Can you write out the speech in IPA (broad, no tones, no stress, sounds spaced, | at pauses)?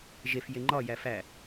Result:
ʒ e f j e ŋ͡ǃ ɒ j æ f æ